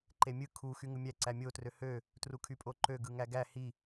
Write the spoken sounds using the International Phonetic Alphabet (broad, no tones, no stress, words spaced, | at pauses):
ǃemʲɯ kʰu xyŋɯmʲæ ǀæmʲotrø hø | trukʰypʼoǃø ɡɯŋæɡæ hi